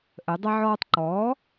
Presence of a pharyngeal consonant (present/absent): present